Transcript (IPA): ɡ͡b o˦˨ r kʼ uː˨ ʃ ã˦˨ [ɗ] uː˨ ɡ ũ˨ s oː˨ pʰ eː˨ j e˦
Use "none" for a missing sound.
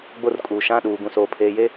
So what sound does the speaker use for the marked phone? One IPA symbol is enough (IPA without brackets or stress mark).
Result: ɗ